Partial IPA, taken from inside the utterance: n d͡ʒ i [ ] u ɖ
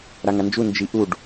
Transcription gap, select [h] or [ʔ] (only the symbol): ʔ